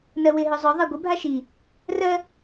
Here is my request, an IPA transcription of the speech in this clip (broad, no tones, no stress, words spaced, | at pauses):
nɜwɪ ɦœzˤœ ðˤaɡʷɪ bʱaʃi | rɜ